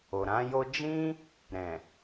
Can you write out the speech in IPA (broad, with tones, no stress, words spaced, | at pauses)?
o˨ɾã˨˦jo˦ d͡ʒĩ˦ | ɾɛ̃˨